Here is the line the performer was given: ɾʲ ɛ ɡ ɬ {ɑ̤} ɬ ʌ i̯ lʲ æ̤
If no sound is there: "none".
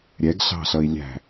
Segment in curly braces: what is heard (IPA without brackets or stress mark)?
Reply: ɑ̤